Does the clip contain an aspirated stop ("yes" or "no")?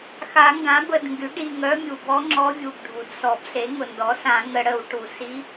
no